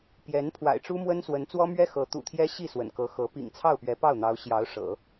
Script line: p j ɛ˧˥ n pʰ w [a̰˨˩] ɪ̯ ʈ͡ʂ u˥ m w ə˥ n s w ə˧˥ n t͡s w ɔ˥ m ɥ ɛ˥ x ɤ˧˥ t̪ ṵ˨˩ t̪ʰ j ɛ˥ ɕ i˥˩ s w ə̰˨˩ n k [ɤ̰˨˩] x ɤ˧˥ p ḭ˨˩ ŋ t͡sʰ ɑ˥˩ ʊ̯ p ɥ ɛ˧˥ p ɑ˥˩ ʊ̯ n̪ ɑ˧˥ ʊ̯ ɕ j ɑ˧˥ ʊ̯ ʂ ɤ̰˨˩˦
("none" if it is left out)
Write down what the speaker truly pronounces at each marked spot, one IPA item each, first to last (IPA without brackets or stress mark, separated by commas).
a̰˨˩, ɤ˧˥